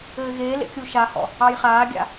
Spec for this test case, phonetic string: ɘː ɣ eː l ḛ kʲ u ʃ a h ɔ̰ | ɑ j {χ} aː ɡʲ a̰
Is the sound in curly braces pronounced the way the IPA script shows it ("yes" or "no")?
yes